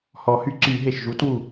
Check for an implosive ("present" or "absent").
absent